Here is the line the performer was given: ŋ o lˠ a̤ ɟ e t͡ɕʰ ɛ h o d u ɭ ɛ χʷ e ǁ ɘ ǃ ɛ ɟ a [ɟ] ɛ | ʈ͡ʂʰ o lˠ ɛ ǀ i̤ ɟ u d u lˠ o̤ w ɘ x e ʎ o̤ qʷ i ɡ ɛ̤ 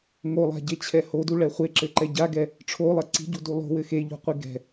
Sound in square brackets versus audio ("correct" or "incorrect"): incorrect